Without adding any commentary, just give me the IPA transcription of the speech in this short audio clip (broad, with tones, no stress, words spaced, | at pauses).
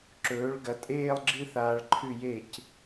ǁɵː˩˥ɭɡɐ˩˥tʼeː˥˧lˠɡ͡ǁɨ˥˧ θaː˧ɭǃʰʉ˥˩je˥˩c